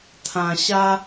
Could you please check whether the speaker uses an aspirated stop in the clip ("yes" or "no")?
yes